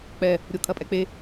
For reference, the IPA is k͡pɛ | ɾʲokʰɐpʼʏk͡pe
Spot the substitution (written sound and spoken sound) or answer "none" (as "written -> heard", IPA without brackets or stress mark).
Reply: ʏ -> ɛ